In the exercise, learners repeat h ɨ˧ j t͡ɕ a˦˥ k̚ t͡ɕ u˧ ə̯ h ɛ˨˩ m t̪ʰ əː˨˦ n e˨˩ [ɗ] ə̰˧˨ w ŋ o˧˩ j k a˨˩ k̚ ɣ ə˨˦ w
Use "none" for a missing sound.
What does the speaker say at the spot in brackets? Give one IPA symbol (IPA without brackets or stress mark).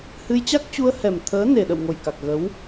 ɗ